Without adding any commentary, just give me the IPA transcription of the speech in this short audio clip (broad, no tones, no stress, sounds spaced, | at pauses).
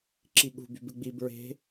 ǁ i ɠ ṳ b y b ɨ ɡ͡b i b ɹ e̤